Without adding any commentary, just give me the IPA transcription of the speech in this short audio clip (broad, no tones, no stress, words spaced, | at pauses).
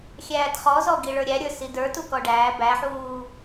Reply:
xʲæːtχɔzɔ ɡiɭə˞ɾʲæɾʲə˞ sidə˞tu kɔɖæː bæħuː